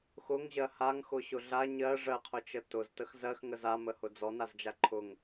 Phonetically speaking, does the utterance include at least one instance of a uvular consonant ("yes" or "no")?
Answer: yes